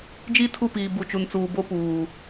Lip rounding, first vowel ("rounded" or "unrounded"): unrounded